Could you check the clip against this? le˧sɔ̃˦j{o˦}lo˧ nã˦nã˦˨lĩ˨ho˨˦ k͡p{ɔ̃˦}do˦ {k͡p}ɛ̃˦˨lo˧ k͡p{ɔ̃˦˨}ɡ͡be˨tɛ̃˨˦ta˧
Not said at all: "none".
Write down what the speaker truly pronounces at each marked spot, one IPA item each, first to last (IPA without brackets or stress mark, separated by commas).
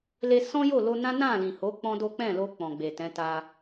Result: o˦˨, ɔ̃˦, k͡p, ɔ̃˨